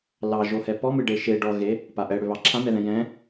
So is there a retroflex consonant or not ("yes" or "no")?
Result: yes